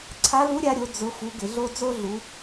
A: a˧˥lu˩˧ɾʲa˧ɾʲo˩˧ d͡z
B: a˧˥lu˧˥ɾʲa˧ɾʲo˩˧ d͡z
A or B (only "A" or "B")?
B